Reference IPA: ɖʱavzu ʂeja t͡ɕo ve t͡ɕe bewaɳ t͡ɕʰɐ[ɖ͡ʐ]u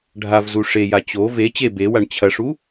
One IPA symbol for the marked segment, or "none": ʂ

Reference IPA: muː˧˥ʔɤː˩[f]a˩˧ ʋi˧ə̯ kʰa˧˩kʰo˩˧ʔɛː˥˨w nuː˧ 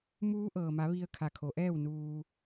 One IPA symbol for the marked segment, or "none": m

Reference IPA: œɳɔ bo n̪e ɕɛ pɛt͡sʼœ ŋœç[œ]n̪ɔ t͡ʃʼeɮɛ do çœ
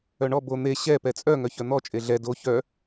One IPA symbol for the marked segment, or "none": œ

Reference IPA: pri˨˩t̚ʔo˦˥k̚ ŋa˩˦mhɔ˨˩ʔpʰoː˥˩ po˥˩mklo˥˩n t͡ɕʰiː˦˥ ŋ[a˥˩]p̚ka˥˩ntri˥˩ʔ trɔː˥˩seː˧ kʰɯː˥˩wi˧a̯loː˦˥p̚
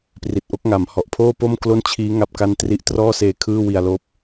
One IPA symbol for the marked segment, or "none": a˥˩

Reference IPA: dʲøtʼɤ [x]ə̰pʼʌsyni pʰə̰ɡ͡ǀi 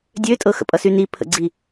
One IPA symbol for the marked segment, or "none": x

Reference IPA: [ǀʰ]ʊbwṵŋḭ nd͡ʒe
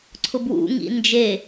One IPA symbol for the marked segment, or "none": ǀʰ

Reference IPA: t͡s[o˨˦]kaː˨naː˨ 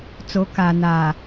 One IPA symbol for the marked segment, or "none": o˨˦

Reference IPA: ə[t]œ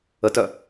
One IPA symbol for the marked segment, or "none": t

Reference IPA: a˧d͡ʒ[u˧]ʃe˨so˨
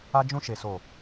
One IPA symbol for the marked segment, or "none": ũ˧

